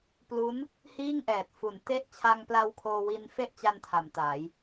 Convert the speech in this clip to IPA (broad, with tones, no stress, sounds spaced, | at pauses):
p l u˦˥ n | h iː˥˩ ŋ ʔ ɛː˨˩ t̚ f u˨˩ n t e˦˥ ʔ t͡ɕʰ a˧ ŋ p l a˧ w kʰ oː˧ w i˧ n f e˥˩ ʔ t͡ɕ a˧ n tʰ a˩˦ m t aː˩˦ j